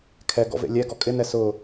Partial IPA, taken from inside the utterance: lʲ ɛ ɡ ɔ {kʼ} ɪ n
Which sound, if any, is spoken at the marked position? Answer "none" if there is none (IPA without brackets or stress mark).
kʼ